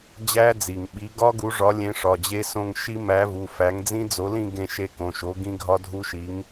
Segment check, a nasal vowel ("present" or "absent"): present